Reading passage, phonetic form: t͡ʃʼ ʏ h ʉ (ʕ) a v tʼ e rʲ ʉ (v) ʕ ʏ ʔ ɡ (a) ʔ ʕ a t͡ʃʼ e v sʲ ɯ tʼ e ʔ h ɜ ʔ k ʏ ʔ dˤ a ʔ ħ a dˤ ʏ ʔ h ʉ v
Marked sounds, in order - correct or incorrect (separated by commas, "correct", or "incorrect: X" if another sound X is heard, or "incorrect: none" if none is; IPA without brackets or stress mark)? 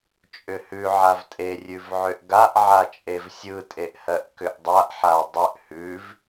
correct, correct, correct